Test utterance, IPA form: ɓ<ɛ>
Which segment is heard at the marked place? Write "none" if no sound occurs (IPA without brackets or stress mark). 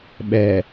ɛ